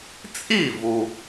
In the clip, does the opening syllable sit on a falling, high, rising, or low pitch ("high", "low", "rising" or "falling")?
falling